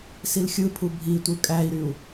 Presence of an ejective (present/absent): present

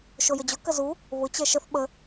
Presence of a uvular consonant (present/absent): absent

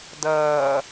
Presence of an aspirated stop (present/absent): absent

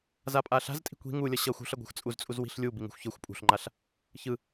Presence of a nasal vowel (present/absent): absent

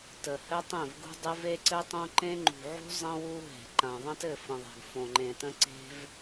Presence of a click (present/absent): present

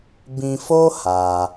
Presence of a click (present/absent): absent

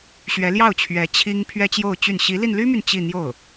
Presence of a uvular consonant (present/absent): absent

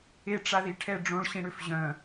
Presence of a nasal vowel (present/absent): present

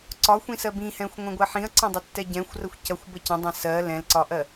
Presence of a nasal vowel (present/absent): present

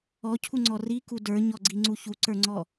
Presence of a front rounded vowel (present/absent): absent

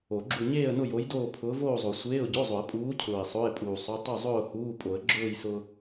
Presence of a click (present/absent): present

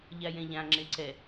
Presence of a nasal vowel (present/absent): present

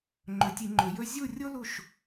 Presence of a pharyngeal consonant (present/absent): absent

